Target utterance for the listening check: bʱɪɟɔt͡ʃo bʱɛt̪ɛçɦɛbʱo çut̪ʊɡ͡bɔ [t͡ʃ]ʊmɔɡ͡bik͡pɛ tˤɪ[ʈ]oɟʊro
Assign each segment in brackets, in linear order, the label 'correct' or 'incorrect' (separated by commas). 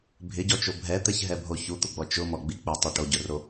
correct, correct